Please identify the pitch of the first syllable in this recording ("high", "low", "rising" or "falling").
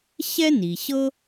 high